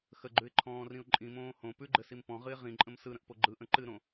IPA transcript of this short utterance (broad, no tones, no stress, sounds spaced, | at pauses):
x ə ɡ͡ǃ ʉ ɪ̯ ǃʰ ɔ̃ː r ĩ ʊ̯ ǃʼ ĩ m õː h õ p ʉ ɡ͡ǃ ɘ s i m p ɔ̃ ʁ ɨ ɪ̯ ʁ ĩ ǃʼ ə̃ m s ɯ ɾ ə̃ ʔ p o ɡ͡ǃ ɯ ʔ ə̃ ǃ ɨ ɾ õ